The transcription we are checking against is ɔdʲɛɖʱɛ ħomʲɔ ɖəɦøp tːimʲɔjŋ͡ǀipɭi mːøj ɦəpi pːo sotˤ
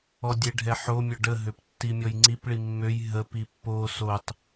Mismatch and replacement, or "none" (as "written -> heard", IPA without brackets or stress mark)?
none